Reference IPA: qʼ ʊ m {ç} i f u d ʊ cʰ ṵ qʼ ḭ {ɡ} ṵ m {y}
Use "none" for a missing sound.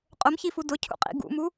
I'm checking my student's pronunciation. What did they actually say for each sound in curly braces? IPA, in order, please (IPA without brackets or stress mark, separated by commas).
ç, ɡ, u